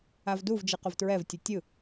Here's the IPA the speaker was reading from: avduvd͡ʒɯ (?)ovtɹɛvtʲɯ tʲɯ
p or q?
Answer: q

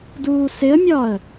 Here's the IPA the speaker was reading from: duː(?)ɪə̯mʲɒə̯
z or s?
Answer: s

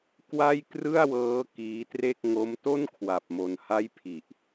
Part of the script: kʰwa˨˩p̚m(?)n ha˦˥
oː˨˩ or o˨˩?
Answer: o˨˩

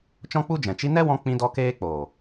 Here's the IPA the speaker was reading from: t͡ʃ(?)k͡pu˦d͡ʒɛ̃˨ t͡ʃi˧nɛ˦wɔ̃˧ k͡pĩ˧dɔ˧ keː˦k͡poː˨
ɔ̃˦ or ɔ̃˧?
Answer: ɔ̃˦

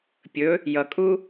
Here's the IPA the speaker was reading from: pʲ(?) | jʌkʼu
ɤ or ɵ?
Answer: ɵ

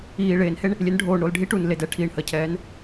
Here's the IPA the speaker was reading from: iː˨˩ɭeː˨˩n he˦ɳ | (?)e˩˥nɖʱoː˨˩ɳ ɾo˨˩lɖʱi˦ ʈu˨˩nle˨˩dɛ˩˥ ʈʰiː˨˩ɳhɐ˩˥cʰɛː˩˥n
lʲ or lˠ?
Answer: lʲ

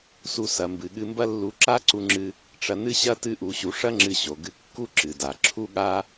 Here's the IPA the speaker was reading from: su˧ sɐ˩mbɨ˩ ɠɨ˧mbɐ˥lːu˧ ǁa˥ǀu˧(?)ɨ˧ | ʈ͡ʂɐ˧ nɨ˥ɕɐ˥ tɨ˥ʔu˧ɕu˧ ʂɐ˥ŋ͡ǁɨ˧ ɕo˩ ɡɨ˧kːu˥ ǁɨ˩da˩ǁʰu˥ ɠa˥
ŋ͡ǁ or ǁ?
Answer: ŋ͡ǁ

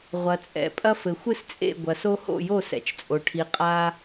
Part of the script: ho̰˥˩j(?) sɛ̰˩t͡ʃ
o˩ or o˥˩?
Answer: o˥˩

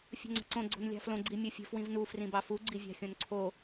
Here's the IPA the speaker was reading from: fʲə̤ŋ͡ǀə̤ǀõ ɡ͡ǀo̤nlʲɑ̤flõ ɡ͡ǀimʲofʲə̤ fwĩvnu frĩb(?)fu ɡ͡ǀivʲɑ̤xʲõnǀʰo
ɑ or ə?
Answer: ɑ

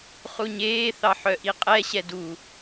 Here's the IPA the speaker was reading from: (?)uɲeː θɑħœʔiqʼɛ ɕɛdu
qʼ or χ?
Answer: χ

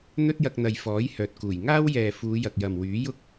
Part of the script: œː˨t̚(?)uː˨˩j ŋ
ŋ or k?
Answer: k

